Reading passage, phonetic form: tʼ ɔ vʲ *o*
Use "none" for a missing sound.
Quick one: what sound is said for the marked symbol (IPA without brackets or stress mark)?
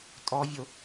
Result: o